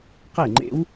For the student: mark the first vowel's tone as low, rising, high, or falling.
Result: falling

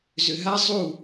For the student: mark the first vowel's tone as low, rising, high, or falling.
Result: low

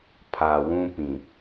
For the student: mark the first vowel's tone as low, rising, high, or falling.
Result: low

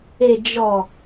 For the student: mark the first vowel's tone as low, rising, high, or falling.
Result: low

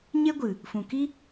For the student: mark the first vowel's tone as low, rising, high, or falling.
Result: high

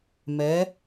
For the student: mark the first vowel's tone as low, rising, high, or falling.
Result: rising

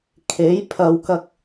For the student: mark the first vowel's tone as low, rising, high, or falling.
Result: rising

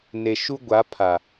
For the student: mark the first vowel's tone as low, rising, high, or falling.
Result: low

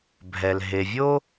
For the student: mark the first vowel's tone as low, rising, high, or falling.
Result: low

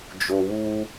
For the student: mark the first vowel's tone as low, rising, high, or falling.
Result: low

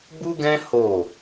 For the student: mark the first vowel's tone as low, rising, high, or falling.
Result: high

